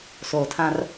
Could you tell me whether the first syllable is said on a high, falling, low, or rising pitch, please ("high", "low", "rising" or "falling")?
low